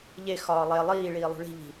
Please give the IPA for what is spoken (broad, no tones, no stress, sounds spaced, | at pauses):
ʎ e x ɒː lˠ e lˠ iː ɭ iː lˠ ṳ ɭ i̤ ʎ i̤